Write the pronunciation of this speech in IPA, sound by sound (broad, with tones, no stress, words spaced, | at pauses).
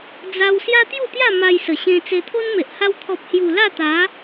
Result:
d͡za˧w sja˦t̪ju˥˧t̪ja˥˧ ma˧jsə˨˩ɕẽ˧ t͡se˧t̪ʰo˦nme˨ʔ ha˧wt̪ʰɔ˨p̚hju˨˩ la˥˧t̪a˨˦